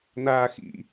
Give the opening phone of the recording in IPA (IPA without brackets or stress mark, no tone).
n̪